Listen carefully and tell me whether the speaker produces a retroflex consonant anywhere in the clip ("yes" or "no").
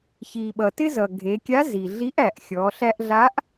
no